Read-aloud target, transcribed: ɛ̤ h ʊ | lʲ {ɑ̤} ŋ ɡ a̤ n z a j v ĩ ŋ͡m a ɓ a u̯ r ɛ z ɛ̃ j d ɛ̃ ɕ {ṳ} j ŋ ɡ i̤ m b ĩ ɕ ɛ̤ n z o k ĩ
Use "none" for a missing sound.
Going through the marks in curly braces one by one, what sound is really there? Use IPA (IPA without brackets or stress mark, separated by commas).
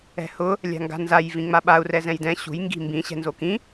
a̤, ṳ